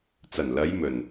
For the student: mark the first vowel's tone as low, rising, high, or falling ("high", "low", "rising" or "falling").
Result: low